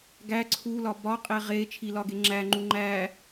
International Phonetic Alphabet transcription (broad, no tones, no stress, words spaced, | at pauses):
ɡæ ǀʰulɒ bɒ qʼeʁe t͡ʃʰilɒɡe ŋ͡ǁæŋ͡ǃu ŋ͡ǃæ